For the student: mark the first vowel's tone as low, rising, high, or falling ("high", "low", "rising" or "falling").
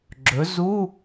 rising